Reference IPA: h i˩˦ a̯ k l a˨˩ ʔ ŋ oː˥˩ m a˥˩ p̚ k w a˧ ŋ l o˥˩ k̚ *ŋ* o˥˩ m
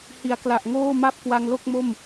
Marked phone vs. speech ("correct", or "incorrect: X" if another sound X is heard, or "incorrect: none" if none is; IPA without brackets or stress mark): incorrect: m